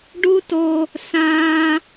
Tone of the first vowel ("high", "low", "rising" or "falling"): high